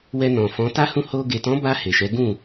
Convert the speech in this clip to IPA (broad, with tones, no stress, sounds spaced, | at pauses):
w ɛ˧ n ɔ̃˨ f ɔ̃˨˦ t a˦ h ũ˦˨ h o˧ ɡ e˨ t ɔ̃˨˦ b a˧ h e˨ ʃ ɛ˨˦ ɡ ũ˦˨